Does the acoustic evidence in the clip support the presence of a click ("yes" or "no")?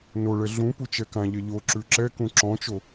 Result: yes